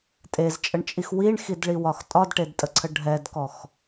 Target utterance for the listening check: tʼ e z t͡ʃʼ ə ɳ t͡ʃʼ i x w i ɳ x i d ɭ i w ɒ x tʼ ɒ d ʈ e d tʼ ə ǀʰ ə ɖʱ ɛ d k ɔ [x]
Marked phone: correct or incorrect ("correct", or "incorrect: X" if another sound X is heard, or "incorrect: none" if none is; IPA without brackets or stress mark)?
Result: correct